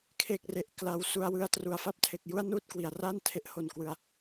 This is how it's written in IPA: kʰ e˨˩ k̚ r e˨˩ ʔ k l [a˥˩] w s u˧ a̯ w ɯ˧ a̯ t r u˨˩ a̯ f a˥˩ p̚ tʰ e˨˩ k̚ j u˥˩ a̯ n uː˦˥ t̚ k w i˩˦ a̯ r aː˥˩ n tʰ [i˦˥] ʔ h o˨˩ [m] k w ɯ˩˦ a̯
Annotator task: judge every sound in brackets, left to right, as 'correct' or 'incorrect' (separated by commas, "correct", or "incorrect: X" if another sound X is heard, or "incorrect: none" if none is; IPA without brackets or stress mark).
incorrect: a˧, incorrect: e˦˥, incorrect: n